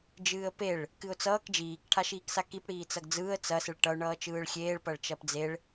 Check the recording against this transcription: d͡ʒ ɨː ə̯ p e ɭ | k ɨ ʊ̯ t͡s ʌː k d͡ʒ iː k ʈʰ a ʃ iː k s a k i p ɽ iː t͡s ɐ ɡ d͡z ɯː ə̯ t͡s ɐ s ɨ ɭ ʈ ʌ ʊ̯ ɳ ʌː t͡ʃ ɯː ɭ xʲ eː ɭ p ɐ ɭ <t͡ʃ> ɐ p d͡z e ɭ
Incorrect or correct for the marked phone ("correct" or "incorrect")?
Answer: correct